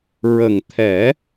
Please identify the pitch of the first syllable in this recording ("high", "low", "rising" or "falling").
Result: low